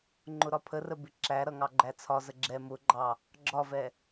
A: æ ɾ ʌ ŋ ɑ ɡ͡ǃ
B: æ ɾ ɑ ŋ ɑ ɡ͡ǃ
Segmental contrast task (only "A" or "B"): A